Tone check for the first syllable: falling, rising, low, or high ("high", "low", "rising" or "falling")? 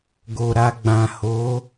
low